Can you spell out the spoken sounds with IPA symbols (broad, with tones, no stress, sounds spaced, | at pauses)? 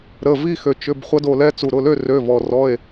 ɾ ə˩˧˩ v i˦˨ x ø˩ t͡ʃ ʏ˩˧˩ b χʷ ɐ˦˥ d o˦˨ l ɛ˦˥ t͡s u˩ ɾ ʊ˩˧˩ l ø˦˨ r ø˩˧˩ v ɔ˩ r ɔ˩˧˩ e̯